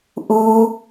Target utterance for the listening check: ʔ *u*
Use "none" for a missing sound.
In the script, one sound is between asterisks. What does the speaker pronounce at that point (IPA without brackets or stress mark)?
u